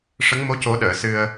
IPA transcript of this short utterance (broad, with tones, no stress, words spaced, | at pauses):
ʂə˧˥ŋmo˧˥ co˨˩˦ɗəː˨˩˨ sɨ˧ə̯